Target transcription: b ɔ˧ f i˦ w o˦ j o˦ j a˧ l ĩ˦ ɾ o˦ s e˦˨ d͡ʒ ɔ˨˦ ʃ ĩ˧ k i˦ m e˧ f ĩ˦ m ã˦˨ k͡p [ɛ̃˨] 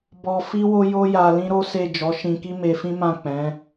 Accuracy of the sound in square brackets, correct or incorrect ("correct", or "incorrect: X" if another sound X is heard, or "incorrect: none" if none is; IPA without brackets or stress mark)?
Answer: incorrect: ɛ̃˨˦